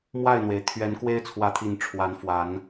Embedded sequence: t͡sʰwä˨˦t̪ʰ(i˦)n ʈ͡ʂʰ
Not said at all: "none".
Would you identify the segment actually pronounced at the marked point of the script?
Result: i˨˩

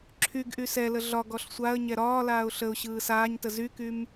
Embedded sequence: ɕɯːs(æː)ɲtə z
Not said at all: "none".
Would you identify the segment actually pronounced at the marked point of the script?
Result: aː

